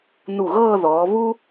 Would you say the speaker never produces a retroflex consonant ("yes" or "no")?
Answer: yes